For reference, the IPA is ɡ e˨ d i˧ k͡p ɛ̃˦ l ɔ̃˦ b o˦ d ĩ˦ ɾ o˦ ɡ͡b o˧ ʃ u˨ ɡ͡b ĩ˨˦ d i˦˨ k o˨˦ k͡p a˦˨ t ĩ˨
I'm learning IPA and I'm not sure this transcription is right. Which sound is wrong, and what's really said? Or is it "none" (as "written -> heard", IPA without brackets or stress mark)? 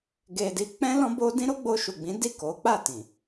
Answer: none